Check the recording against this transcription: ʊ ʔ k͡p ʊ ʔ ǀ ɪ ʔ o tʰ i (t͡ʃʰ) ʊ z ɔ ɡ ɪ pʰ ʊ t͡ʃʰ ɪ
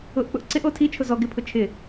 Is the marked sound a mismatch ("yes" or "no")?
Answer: no